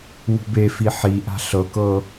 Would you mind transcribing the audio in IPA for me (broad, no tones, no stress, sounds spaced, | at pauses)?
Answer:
w ṳ b e f i ħ i ʔ a̤ ɬ ɤ k ɤ